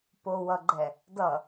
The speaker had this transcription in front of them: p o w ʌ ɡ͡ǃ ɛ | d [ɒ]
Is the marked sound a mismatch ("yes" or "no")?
yes